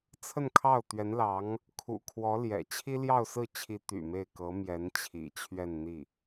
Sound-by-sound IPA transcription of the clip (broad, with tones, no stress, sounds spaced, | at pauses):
t͡sʰ ə˥˧ n kʰ ɑ˥˩ ʊ̯ t̪ ɥ ɛ˧˥ n l ɑ˧˥ ŋ | kʰ ṵ˨˩ kʰ w ɔ˧˥ l j ɛ̰˨˩ t͡ɕʰ i˥ l j ɑ˥˧ ʊ̯ s ɹ̩˥˩ t͡ɕʰ i˧˥ t̪ y̰˨˩ m e˥˩ ɪ̯ k ɤ˧˥ m j ɛ˧˥ n t͡ɕʰ ḭ˨˩ t͡ɕʰ ɥ ɛ˥˧ n n̪ i˥˩